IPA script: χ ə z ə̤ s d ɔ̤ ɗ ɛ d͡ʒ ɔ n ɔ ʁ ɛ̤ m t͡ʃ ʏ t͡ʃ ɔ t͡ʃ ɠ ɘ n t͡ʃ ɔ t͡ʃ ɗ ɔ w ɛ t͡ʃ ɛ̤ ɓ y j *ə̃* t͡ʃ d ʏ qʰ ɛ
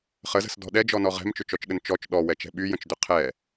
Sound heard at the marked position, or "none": ə̃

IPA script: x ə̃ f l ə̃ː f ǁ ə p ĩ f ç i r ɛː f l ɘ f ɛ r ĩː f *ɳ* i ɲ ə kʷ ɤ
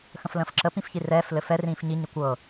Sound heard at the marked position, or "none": ɲ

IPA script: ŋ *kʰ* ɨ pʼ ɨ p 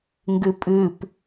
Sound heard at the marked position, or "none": ɡ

